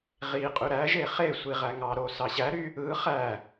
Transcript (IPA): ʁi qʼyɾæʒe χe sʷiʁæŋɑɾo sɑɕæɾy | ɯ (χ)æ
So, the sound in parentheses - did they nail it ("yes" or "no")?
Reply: yes